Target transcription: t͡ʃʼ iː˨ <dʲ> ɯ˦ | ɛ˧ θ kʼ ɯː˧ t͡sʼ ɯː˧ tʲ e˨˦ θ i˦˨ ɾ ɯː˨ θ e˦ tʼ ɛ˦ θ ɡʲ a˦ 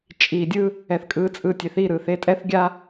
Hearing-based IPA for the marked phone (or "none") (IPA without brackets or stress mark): dʲ